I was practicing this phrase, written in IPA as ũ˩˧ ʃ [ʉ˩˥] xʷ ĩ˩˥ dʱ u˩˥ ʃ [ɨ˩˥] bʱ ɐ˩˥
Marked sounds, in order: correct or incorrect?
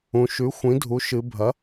correct, incorrect: ɨ˩˧

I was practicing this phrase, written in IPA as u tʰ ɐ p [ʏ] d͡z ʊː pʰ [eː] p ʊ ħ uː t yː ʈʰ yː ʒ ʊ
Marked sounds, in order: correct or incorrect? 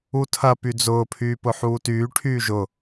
incorrect: y, incorrect: yː

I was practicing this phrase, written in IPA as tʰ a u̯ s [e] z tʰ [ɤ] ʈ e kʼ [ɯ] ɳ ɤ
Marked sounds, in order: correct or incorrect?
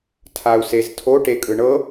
correct, incorrect: o, correct

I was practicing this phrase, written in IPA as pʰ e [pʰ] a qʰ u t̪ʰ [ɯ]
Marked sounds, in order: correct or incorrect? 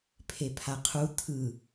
correct, correct

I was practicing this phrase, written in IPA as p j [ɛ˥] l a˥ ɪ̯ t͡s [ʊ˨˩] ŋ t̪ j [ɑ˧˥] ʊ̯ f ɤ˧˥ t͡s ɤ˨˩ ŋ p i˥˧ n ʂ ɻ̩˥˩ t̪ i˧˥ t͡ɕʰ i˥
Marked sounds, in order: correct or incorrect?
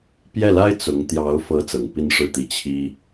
incorrect: ɛ˥˩, incorrect: ʊ˧˥, correct

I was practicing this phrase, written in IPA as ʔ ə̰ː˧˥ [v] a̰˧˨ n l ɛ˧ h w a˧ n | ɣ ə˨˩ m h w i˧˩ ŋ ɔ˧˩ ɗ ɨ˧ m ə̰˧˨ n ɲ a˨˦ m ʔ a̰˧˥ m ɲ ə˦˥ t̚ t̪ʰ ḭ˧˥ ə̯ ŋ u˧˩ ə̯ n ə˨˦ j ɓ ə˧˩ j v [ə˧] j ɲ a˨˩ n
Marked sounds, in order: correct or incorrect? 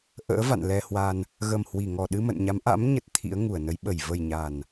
correct, incorrect: ə˨˩

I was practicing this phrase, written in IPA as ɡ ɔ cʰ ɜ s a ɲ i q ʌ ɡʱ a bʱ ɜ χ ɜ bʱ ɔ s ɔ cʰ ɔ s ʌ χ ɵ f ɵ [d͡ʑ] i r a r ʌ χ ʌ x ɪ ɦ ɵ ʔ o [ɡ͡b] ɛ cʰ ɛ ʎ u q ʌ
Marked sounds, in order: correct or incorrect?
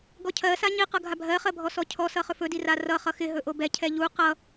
incorrect: d, incorrect: b

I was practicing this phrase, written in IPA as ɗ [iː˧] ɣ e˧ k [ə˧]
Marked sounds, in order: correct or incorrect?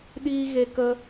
correct, correct

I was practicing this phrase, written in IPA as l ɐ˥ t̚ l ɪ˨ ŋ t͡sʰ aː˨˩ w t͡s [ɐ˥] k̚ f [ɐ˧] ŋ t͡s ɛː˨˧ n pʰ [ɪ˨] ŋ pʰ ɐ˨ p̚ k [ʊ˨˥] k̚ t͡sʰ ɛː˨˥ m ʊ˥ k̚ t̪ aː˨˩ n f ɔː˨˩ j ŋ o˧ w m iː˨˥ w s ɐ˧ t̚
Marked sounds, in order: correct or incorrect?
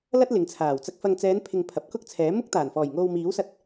incorrect: ɐ˧, correct, correct, incorrect: ʊ˥

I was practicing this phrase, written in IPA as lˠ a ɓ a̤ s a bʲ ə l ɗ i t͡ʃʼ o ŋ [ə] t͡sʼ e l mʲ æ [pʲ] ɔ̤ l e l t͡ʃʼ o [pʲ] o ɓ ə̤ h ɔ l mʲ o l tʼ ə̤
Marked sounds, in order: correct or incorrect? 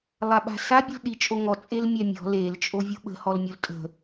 incorrect: ɔ, incorrect: mʲ, incorrect: vʲ

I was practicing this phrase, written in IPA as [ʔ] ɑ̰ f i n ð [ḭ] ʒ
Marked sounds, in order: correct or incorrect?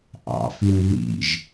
correct, correct

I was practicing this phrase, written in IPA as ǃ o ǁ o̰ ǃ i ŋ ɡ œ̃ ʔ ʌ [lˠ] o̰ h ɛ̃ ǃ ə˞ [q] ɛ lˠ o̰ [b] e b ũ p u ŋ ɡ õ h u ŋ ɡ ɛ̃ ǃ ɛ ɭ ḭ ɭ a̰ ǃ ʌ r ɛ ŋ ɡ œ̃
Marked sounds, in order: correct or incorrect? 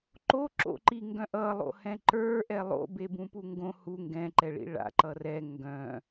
correct, incorrect: ʔ, correct

